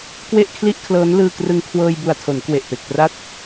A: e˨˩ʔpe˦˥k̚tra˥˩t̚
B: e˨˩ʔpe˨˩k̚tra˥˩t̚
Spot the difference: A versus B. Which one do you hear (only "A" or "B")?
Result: B